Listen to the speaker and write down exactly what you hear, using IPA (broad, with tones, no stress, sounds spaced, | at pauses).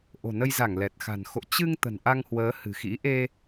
ʔ o̤˨˩ n ə˧ j z a˧˩ ŋ l ɛ˨˩ t̚ x a̤˨˩ n x o̰˧˨ t͡ɕ ɨ˧ ŋ t̪ ə̤˨˩ n ʔ a˧ ŋ h w əː˨˦ h ɨ̤˨˩ x ḭ˧˥ ʔ e˧